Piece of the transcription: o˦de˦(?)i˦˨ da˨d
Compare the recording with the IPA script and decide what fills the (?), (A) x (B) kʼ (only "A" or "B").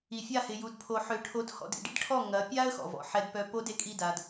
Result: B